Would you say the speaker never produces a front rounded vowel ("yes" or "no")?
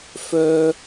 no